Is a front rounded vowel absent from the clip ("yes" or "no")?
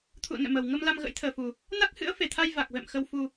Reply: yes